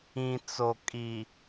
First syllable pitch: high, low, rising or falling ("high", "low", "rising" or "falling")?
low